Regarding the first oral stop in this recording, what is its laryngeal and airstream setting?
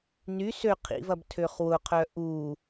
aspirated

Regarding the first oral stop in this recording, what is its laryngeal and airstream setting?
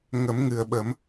implosive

